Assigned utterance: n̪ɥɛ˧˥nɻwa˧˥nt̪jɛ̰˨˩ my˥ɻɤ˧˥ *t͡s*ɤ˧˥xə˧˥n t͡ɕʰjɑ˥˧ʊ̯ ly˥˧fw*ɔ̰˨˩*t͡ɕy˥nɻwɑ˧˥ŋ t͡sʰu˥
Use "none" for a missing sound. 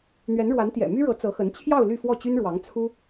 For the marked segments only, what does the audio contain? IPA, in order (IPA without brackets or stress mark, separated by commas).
t͡s, ɔ˥˩